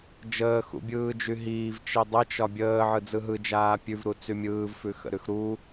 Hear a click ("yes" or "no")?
no